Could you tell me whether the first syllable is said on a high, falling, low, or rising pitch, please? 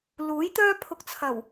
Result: rising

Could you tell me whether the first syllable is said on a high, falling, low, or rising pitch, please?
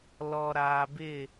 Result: low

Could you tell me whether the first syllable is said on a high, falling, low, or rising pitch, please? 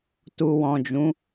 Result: low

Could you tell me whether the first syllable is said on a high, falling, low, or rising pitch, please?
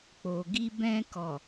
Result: low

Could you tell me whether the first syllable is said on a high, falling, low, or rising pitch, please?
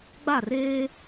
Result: falling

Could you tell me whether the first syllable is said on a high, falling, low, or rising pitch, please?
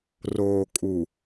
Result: low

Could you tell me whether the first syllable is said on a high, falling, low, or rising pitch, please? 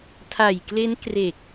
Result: low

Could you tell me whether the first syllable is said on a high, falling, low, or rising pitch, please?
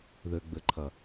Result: low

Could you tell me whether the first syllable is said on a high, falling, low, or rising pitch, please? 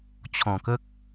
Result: low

